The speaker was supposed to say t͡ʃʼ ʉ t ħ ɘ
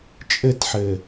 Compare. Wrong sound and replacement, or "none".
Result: ʉ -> ɘ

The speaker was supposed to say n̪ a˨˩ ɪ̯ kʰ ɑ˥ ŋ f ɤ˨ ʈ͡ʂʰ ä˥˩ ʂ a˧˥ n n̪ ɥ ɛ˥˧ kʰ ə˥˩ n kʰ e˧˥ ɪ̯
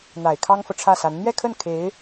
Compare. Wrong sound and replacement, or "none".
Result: ʂ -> s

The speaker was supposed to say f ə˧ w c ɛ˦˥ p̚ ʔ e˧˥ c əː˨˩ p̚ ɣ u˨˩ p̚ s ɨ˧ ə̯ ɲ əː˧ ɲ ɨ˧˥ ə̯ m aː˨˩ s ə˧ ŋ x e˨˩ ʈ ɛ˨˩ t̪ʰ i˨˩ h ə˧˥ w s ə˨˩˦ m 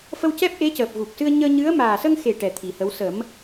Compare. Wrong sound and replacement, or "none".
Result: none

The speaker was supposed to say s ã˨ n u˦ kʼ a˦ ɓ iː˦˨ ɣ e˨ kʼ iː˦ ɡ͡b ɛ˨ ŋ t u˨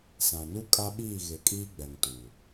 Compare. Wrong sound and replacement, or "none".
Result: none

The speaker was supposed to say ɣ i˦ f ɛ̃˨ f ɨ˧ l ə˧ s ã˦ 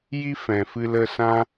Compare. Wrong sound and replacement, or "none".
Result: ɣ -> j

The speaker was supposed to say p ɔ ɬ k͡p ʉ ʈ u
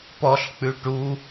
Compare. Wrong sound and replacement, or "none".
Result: none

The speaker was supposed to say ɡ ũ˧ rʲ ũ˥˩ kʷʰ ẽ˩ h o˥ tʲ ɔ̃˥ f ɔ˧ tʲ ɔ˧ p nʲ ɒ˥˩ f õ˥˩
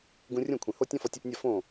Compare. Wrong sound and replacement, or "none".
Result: none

